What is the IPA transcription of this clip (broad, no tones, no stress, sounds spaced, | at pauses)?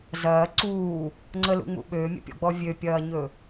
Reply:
z ɐː ǀ uː | ŋ͡ǀ ə l ṵ ŋ͡m ṵ ɓ øː mʲ ə̰ pʲ ɔ̰ ɡ͡b ɔ vʲ ø pʲ ɐː ɲ ɵ